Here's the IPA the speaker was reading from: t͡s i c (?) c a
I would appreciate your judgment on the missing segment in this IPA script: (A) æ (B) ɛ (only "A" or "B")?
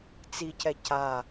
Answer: B